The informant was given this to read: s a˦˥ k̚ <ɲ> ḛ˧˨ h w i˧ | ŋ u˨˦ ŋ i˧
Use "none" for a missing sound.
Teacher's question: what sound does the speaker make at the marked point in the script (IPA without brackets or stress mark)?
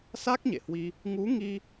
ɲ